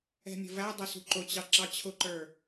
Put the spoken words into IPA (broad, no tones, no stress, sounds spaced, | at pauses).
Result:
ɛ̤ mʲ ə̤ v æ dˤ ə s ṳ ǃ ʊ t͡ɕ ɑ ǁ ɑ t͡ɕʰ ʊ ǃ ə˞